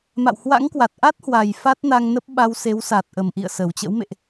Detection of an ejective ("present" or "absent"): absent